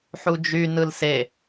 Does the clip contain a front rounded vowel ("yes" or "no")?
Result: yes